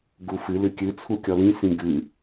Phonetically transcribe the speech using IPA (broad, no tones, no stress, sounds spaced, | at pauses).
ɡ u f ɨ l ɨ kʲ ɨ t͡sʰ u kʲ ɔ l ĩ s ĩ ɡ ɨ